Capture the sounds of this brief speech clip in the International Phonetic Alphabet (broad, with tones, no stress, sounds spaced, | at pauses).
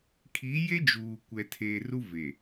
kʰ i˨˦ j e˦ d͡ʒ uː˨ kʷ ɛ˨ tʰ eː˨ r u˦ v e˨